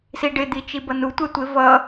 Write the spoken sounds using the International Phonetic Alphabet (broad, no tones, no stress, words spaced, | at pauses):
siɖɪ d̪it͡ʃibʌnu tʷɛtʷɪ vʌ